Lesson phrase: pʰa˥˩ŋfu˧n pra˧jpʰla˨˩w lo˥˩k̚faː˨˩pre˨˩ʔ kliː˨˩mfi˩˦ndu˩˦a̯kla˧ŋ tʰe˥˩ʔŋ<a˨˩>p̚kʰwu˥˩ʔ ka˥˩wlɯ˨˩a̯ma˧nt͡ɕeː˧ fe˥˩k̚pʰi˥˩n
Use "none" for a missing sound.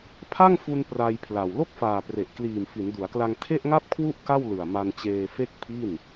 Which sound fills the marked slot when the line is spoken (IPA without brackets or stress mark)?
a˥˩